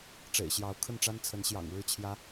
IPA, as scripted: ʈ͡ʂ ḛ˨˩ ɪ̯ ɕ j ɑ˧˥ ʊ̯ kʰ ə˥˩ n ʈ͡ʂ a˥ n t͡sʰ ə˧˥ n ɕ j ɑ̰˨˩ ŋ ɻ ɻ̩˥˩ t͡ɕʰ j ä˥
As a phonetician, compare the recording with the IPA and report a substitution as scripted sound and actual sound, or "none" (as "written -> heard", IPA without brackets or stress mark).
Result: none